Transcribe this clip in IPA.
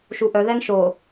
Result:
ʃ u ʔ œ ð ɛ ŋ ʃ o

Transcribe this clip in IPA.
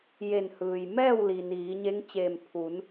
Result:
j e˧˩ n h ɯː˩ j m ɛː˥˨ w l i˩ n iː˩˧ ɲ e˧˥ ŋ t͡ɕ eː˧˩ m pʰ u˩˧ n

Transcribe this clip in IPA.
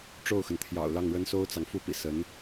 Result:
ʈ͡ʂ o˥˩ ʊ̯ x ə˩ n t̪ʰ j ɑ̰˨˩ ʊ̯ l ɑ˥˩ ŋ ɻ ə˥ n s o˥ ʊ̯ t͡s ɑ˨ ŋ f u˥˩ p ḭ˨˩ s ə˧˥ n

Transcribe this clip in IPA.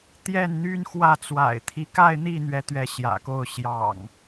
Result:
t̪ j ɛ˥˨ n n̪ y˦ n x w ä˥˨ t͡s w a̰˨˩ ɪ̯ t̪ʰ i˦ k a˥˨ ɪ̯ n̪ i˥˨ n̪ ɥ ɛ˨˦ t̪ ɥ ɛ˨˦ ɕ j ä̰˨˩ k o˥˨ ʊ̯ ɕ j ɑ̰˨˩ ŋ

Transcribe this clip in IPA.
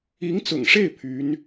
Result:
i˧˥ ŋ t͡s ʊ̰˨˩ ŋ ʂ e˥˩ ɪ̯ pʰ y˧˥ n

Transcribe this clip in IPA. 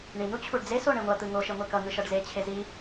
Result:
ɳ i n̪ u t͡ɕʰ u ɖ d͡z e s o ɳ e ŋʷ ʌ t̪ ɯ ŋ o ʃ e ŋʷ e k ʌ ŋ ɯ ʃ ʌ ɖ z e t͡ɕʰ e z i

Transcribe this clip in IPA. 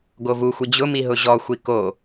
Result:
ɡ o v u xʷ i d͡ʑ ʊ m i ɦ ʊ ʑ ɔ xʷ i k o

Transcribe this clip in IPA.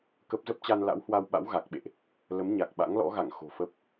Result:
k ə˦˥ p̚ z ə˦˥ p̚ t͡ɕ a˧ n l a̰˧˥ w h w a˧ w ɓ a̰˧˥ w ɣ a˨˩ k̚ ɓ ḛ˧˨ ʔ | l ə˨˦ m ɲ a˨˩ k̚ ɓ a̰˧˥ ŋ l ɔ̰˧˥ ɣ a̰˧˨ ŋ x o̤˨˩ f ə˦˥ p̚

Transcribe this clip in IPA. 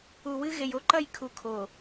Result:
u˨ w ɨ˦ ɣ e˨ j o˦ ǃ ɐ˦˨ j kʰ u˨ kʰ o˨

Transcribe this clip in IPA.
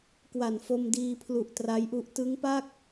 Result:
k w a˨˩ n f o˧ m d iː˧ pʰ l u˨˩ ʔ t r a˦˥ j ʔ u˦˥ ʔ t ɯ˦˥ ŋ p a˥˩ k̚

